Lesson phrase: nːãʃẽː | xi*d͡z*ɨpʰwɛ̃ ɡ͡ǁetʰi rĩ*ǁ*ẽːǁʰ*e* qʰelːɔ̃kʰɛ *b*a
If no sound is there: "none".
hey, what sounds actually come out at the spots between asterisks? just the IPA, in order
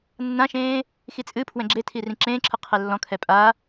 t͡sʼ, ǁ, ɨ, pʼ

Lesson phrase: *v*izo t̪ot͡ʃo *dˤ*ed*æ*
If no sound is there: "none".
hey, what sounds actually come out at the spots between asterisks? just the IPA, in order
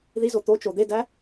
ð, d̪, æ

